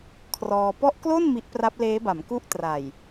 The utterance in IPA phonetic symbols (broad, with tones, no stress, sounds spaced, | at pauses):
kʰ r ɔː˧ p ɔ˦˥ ʔ k l o˥˩ n m i˦˥ ʔ p r a˦˥ p̚ l eː˦˥ b a˩˦ m k u˦˥ ʔ t r a˨˩ j